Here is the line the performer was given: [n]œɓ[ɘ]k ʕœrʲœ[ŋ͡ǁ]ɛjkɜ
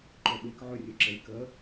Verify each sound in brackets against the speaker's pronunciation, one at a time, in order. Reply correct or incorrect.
incorrect: ǃ, incorrect: e, incorrect: ǁ

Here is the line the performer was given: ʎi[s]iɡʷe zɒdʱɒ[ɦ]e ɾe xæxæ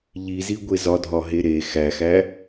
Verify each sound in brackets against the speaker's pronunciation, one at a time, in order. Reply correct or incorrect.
incorrect: z, correct

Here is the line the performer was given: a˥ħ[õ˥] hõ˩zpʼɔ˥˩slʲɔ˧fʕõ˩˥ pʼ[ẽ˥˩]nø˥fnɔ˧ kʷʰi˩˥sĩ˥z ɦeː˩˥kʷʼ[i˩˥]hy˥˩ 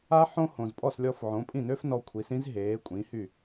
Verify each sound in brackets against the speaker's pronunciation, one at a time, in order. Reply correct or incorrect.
correct, incorrect: ĩ˥˩, incorrect: ĩ˩˥

